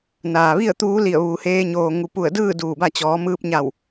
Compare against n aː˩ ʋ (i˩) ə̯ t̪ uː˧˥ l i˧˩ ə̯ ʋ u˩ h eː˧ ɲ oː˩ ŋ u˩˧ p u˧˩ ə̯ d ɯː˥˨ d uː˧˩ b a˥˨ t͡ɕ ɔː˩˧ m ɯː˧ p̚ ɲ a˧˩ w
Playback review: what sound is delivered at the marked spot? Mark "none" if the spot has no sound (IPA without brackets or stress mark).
i˥˨